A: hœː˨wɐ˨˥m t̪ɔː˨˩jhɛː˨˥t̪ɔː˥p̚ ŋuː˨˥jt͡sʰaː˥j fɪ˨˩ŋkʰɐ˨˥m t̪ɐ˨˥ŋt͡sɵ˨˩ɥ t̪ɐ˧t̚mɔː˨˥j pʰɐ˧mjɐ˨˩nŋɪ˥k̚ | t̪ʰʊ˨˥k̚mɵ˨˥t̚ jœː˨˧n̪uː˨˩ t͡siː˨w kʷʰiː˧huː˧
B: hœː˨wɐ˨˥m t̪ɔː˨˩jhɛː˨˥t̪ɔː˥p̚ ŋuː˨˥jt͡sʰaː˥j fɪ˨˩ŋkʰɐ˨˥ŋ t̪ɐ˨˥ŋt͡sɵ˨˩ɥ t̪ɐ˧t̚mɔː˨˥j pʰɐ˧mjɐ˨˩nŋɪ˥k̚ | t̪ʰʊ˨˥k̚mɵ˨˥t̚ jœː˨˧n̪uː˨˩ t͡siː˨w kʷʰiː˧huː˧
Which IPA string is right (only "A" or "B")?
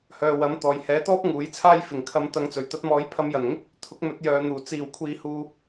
A